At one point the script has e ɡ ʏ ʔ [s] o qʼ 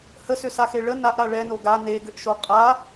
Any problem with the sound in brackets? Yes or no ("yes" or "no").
yes